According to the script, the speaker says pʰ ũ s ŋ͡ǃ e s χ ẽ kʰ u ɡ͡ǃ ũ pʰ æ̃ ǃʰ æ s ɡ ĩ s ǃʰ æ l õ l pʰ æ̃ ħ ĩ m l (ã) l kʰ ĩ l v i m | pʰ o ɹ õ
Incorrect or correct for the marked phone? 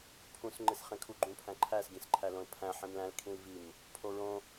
incorrect: æ̃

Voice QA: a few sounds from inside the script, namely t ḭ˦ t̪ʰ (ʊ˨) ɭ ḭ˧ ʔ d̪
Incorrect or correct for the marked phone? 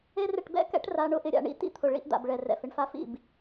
correct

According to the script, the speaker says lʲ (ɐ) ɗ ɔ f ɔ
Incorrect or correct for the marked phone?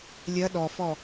correct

